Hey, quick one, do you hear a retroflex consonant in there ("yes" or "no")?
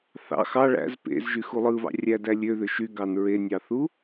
yes